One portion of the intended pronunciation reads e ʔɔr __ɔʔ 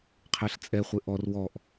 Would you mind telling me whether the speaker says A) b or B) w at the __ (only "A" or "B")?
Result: B